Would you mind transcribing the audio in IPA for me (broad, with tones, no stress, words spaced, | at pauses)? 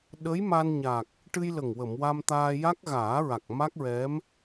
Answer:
ɗə˧˥j ma˧nɲa˨˩k̚ | ʈɨ˧jlə˨˩ŋ wə˨˩˨mwa˧mt̪aː˧ ja˦˥k̚ɣaː˨˩˦ɹa˨˩k̚ ma˦˥k̚ɹɛ˧˥m